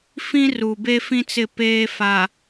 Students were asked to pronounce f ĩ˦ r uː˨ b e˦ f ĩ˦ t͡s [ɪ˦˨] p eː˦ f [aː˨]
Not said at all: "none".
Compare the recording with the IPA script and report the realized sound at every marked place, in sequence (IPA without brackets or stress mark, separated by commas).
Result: ɪ˦˨, aː˨